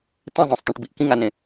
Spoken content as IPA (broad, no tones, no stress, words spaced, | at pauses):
tẽzˤõsˤt̪ẽʈbiʔ kĩŋanẽ